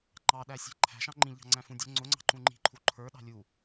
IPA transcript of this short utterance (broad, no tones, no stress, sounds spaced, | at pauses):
ŋ͡ǃ ɑ ɗ æ sʲ æ̤ ǃʰ æ̤ ʃ ɑ̃ ŋ͡ǃ ĩ ʎ ɑ̤ ŋ͡ǀ æ̃ f ũ dʲ ʊ ŋ͡ǀ ʊ ŋ͡ǀ ɑ̤ ǃ ũ ŋ͡ǃ i̤ ǃʰ u ǃʰ ə˞ ɗ ɑ̤ lʲ u